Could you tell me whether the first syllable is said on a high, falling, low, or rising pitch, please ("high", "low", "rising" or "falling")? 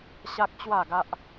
high